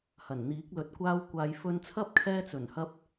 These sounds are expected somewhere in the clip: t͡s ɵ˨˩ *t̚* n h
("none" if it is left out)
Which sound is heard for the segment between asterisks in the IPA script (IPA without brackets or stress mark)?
none